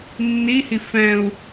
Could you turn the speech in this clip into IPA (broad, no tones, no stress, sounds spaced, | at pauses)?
nː i h i f ɛ̃ u̯